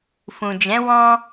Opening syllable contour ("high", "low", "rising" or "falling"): low